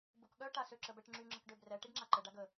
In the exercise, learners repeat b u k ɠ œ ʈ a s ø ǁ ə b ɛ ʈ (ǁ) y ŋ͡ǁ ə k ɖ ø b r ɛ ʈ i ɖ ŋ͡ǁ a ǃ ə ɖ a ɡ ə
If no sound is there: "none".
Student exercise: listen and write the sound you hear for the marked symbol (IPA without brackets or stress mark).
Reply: ŋ͡ǁ